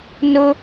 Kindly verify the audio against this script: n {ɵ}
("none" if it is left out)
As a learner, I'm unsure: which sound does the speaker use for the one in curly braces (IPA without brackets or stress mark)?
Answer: ʊ